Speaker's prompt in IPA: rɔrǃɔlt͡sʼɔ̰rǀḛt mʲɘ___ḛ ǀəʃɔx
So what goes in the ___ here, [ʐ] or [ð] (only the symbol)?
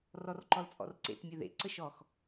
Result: ð